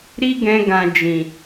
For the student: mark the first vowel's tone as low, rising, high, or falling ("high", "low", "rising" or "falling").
high